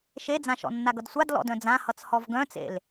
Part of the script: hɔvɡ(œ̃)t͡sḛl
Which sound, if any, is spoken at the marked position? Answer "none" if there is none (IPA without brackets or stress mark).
œ̃